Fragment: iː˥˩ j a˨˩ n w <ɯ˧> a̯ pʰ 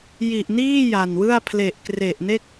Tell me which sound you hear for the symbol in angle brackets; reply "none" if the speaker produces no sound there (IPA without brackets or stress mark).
ɯ˥˩